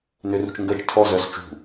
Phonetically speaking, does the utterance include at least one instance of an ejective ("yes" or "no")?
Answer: no